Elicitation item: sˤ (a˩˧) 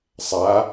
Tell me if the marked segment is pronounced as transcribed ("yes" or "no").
yes